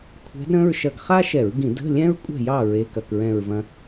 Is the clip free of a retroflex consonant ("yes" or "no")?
yes